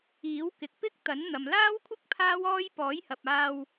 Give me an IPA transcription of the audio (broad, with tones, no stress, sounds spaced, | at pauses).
iː˨˥ w k ɪ˨ k̚ p ɪ˥ k̚ t̪ ɐ˨˥ n n̪ ɐ˨ m l aː˥ w kʷʰ ɪ˥ k̚ pʰ aː˥ w ɔː˥ j p ɔː˨˥ j h ɐ˨ p̚ aː˧ w